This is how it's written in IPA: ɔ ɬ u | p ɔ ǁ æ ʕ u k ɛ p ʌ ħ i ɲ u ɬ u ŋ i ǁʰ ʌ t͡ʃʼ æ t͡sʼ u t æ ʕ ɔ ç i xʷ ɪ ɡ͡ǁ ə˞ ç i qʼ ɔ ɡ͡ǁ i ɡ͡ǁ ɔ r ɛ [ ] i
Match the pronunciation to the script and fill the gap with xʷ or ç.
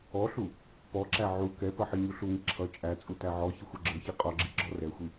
xʷ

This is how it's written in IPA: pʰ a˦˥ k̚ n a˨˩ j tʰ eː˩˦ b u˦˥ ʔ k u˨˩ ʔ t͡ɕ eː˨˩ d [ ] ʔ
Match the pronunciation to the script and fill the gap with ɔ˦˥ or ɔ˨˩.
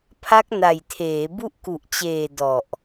ɔ˨˩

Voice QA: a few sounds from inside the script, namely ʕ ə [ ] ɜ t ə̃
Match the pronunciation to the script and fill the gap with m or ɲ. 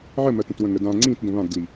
m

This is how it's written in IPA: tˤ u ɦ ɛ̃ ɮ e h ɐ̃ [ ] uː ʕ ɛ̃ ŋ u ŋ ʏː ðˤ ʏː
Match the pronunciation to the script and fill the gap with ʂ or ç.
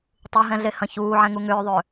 ç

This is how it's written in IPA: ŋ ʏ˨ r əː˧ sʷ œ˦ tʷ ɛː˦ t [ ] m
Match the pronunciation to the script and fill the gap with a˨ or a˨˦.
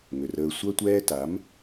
a˨˦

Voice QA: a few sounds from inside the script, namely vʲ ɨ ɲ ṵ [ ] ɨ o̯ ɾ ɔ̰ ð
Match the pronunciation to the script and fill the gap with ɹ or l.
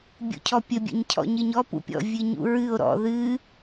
ɹ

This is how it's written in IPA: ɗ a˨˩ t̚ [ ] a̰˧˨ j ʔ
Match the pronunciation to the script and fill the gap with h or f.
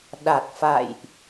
f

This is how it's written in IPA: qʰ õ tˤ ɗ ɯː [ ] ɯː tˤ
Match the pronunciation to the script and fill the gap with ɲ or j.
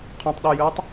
j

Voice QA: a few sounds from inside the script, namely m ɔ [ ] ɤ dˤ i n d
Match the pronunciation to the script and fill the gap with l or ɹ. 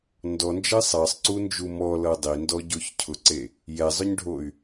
l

